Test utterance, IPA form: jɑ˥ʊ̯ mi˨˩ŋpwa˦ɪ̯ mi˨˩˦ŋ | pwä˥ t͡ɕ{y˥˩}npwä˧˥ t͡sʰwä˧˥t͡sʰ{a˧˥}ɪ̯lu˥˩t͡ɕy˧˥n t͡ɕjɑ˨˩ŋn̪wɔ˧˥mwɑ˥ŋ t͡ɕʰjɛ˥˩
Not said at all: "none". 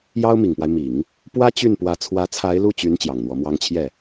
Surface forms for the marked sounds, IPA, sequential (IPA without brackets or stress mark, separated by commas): y˥˩, a˧˥